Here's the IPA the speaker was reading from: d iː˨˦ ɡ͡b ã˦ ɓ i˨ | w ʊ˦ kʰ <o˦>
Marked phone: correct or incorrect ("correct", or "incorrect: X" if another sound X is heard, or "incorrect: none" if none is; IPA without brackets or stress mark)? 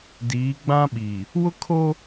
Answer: correct